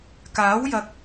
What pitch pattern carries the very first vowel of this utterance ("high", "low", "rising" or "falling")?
rising